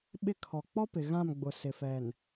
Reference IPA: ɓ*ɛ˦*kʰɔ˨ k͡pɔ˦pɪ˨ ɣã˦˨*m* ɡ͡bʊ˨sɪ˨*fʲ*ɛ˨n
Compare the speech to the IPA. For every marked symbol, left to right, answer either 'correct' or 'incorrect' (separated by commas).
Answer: incorrect, correct, incorrect